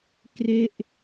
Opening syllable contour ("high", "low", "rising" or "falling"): falling